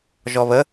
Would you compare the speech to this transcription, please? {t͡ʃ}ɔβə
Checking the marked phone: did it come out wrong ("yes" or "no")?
yes